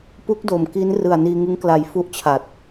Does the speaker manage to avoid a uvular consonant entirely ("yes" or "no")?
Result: yes